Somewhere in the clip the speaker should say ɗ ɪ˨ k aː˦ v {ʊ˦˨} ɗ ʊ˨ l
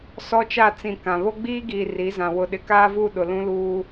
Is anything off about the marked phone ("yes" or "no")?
yes